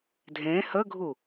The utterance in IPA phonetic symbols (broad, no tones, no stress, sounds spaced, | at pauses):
dʱ ẽ h ə ɡʱ u